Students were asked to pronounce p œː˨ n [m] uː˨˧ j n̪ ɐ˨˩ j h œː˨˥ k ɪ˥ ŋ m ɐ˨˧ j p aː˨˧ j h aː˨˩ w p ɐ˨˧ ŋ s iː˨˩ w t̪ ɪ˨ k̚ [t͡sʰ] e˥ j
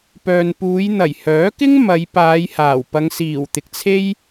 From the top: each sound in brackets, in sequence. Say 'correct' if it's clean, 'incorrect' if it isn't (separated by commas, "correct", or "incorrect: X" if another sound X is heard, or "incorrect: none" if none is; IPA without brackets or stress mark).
incorrect: p, correct